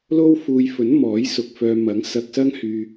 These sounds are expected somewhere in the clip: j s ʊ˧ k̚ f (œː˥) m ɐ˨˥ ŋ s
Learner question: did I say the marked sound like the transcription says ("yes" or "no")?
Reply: no